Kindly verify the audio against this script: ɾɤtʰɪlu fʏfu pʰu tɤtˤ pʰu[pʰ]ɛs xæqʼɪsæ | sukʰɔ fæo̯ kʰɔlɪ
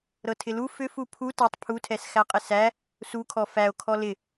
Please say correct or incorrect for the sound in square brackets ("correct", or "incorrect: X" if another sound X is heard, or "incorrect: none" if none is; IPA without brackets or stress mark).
incorrect: tʰ